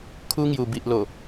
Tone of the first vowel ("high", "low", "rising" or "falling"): high